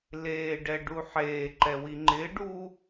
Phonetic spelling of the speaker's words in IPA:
leːɖɛɖu ħeːǃɛwi ŋ͡ǃɪːɖuː

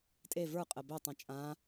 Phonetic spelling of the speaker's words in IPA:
tʼe və˞qʼə bøtˤĩ t͡ʃʼã

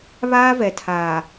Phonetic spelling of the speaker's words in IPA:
βaː˦vɛ˨tʰaː˨

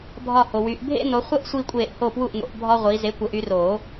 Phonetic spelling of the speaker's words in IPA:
bʱɒ˥˨ho˨ wy˨˦ʔ bʱḛ˥no˨˦χʷə˥ʔ sʷi˥kʷʼeː˥˨ʔ ho˥˨pwu˥˨ʔno̰˨˦ʔ bʱɒ˥ʁʷi˨˦ ze˨˦kʷə˨˩˦ʔy˨˦roː˨˩˦

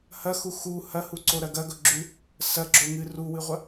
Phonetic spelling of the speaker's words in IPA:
hɐxu xu hɐhuǀoɾɐ ɡɐɡɵɡ͡ǁʉ | sɐɡ͡ǁoŋɨ ruwɨʁʷɐ

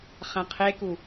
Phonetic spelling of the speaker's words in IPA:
χæ̃qʰeku

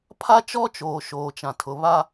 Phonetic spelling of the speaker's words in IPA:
pʰa˦t͡ʃɔ˦t͡ʃoː˨ ʃoː˨t͡ʃã˨ tʰʊ˨ βa˦

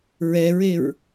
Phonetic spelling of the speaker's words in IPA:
ɹɛɹeɹ

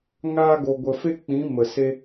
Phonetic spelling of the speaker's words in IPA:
ŋa˧ ɡo˨ɡʷə˨ fe˦k͡pĩ˨˦ mə˨se˦

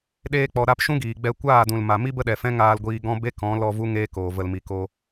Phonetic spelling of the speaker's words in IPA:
ɗeː˧k͡pɔ˨ ɾa˧p ʃũ˦ɡiː˨ɡ͡bɛ˧ kʷaː˦˨dũ˨lma˨mi˦ bə˦ɗɛ˨fɛ̃˦ ŋaː˧lɡʷiː˧ ɡɔ̃˦ be˦kɔ̃˨˦ lɔ˧ vu˦ŋeː˦koː˨və˧l mi˨ko˧

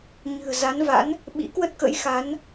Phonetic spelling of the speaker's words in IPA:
ɲɨ̤˨˩ə̯za˨˦n va̰˧˥n | ɓḭ˧˥kwə˦˥t̚kə̰˧˥j xa˨˦n

